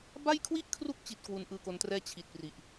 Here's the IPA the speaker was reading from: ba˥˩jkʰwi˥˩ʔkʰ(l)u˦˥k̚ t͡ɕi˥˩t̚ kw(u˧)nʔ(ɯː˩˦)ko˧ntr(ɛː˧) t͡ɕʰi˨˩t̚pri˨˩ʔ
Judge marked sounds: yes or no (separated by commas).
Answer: no, yes, no, no